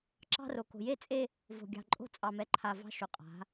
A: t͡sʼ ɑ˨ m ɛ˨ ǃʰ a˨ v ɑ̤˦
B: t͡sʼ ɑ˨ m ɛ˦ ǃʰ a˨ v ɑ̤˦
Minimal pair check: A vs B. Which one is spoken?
A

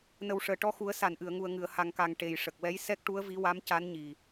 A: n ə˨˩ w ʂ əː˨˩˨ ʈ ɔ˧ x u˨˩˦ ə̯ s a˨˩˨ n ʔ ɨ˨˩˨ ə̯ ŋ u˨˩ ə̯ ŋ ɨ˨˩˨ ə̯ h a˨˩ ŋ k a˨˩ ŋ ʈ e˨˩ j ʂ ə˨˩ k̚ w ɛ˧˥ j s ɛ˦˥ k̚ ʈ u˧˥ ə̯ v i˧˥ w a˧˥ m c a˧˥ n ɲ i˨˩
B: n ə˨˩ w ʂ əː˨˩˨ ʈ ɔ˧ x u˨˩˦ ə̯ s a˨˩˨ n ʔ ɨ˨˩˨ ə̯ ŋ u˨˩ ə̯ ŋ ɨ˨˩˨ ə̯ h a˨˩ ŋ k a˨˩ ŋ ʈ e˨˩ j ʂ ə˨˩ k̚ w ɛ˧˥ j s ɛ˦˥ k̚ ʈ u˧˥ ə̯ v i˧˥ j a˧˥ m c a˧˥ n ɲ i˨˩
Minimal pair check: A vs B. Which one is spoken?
A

